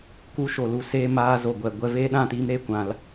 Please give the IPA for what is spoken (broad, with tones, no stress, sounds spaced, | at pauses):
k u˧ ʃ o˨ l u˨ s eː˧ m aː˧ z o˨ ɡʷ ɛ˨ ɡʷ ɛ˧ v eː˦ ɗ ã˦˨ t iː˧ m ɾ e˦ kʷ ã˧ l